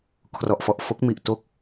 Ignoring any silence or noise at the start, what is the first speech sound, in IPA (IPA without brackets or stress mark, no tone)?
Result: kʰ